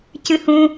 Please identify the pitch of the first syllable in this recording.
high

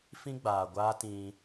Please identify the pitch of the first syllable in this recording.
high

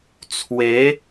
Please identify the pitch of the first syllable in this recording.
rising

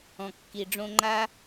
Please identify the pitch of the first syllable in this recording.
low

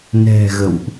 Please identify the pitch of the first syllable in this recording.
low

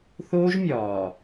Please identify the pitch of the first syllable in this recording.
high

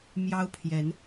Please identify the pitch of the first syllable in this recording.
high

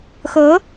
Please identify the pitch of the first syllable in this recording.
rising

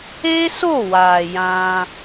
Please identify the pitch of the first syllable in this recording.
high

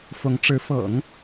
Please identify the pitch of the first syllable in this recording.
rising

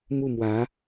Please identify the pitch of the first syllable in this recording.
falling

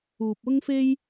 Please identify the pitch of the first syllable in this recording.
low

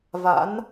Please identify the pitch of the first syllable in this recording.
rising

